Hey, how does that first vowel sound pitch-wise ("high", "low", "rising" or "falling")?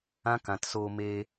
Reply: high